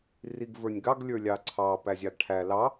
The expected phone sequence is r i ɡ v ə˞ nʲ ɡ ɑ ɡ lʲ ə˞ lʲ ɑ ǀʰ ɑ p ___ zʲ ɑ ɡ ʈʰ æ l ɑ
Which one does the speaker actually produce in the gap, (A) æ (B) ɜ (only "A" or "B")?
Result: A